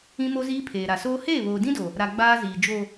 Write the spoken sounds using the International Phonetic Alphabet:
ĩ˦ m o˦ z iː˦ pʰ eː˨ ɾ a˨ s oː˦ h eː˦˨ β oː˨ d ĩ˦ d o˨ | ɾ a˨ ɡ͡b aː˦ z iː˨ d͡ʒ o˨

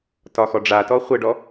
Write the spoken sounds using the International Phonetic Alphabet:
t ɒ x ɔ ɖ͡ʐ a t ɔ χʷ ə ɖ ɔ

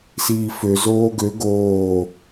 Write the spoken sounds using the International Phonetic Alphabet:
s iː f ø z oː ɡ ø ɡ oː

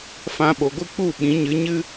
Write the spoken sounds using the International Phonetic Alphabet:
f ã˧ ɓ o˨ ɡʷ ɨ˦ k͡p u˦˨ ɓ ĩ˨˦ ɲ ɨ˨˦ ɲ ɨ˦

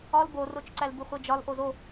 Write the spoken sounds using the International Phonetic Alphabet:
ɒ l b o r o t͡ʃ ǀ æ l b u χʷ e d͡ʒ ɒ l ʔ o z o

